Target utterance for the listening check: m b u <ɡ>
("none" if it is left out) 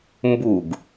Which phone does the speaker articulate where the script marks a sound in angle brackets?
ɡ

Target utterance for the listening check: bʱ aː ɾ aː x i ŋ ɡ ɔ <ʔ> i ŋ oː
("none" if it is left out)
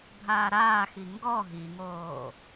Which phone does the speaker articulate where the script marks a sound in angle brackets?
ɦ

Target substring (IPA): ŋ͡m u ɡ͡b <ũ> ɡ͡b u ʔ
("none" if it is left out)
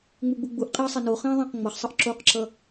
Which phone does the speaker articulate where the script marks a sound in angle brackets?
u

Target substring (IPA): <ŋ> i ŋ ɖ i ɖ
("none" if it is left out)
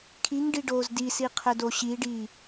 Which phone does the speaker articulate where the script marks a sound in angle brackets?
kʰ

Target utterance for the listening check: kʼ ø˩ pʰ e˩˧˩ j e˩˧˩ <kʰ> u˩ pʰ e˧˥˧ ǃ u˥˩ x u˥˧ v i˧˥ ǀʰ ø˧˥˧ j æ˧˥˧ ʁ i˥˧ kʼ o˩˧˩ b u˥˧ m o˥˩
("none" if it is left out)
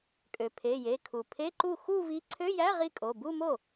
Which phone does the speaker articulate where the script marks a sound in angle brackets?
kʰ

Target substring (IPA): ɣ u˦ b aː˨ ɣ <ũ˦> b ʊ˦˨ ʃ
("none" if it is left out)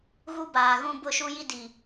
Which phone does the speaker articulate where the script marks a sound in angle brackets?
ũ˦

